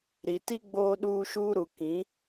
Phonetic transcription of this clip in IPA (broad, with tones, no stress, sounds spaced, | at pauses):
ɾ i˨ t i˦ ɡ͡b oː˦ ɗ uː˦ ʃ uː˦ ɾ u˨ k ĩ˨˦